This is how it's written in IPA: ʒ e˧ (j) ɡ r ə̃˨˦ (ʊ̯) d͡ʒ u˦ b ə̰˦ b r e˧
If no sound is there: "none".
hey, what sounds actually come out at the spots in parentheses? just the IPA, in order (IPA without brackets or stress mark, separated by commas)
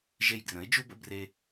j, ɪ̯